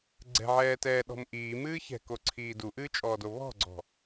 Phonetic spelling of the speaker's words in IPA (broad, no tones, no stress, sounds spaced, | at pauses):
ɡ͡ǀ ɛ̤ ʕ ɛː t ɛː ɗ ɔ̤ m ʔ iː m ɨː ç ɛ̤ k o ǀʰ iː d u ʔ ɨː t͡ʃʼ ɔː d o β ɔ̤ ɡ͡ǀ ɔ̤